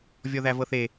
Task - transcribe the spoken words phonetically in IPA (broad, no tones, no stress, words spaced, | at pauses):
vʲɔðævɤθe